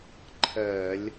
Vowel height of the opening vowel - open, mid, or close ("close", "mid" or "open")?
mid